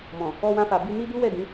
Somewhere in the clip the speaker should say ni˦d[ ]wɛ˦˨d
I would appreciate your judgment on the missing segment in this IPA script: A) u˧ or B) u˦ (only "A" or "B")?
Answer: B